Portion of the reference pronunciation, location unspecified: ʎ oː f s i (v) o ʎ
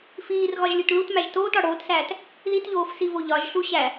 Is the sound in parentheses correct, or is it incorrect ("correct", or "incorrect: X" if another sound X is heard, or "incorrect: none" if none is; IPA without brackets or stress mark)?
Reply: correct